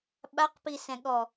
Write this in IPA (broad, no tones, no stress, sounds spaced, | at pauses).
ɓ a q p i s ɛ̃ ɠ ɔ